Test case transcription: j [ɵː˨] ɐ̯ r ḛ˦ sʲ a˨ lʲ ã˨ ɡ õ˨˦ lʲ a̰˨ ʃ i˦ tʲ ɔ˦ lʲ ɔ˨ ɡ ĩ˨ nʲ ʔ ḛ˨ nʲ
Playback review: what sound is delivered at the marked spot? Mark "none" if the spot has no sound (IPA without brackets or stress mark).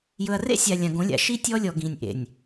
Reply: ɵ˨